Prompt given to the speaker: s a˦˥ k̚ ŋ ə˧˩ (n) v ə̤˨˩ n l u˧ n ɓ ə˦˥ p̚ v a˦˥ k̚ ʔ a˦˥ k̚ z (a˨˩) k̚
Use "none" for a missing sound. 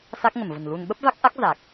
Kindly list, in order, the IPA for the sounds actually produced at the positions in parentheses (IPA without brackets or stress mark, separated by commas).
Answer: m, a˨˩